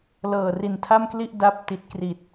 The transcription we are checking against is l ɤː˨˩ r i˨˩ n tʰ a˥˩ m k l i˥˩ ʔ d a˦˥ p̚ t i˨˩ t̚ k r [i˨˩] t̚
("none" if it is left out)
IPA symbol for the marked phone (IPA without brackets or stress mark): i˨˩